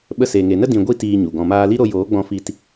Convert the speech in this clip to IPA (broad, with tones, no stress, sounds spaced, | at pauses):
ɓ ə˧ s e˨ ŋ e˨ n ə˦ d ĩ˧ ɡʷ i˦ t iː˧ ɲ u˨ ɡ ɔ̃˨ m aː˧ l i˦ ɾ o˧ j oː˨˦ ɡ͡b ɔ̃˧ f i˧ t